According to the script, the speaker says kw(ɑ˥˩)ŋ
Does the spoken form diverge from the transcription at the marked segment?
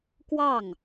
no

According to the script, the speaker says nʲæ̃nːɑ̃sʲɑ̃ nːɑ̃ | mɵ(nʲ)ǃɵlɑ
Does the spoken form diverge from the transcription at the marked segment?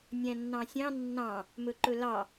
yes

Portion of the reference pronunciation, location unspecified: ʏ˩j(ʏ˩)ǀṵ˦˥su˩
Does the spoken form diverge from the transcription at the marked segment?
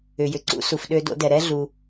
no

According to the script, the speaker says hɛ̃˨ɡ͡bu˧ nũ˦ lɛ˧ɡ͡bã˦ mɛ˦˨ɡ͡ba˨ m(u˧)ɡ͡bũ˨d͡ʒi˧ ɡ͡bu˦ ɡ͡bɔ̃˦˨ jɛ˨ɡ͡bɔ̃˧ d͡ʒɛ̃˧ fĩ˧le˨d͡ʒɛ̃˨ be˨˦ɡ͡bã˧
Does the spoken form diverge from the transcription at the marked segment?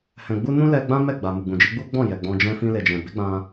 yes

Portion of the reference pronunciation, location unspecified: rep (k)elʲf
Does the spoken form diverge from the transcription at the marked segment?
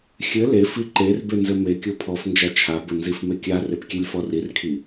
yes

